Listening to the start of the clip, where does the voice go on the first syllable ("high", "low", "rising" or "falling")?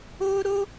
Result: high